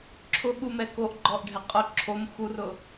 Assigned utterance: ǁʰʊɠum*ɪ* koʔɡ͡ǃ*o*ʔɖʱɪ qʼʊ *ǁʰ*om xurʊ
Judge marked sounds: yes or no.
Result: no, no, yes

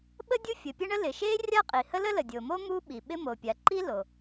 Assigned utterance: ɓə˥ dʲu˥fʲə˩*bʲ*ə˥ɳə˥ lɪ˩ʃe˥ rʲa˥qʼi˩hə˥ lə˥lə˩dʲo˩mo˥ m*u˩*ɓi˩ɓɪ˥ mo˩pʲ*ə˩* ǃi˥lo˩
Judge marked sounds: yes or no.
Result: no, no, no

